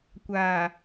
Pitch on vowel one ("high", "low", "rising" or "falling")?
low